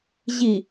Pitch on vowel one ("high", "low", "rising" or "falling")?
low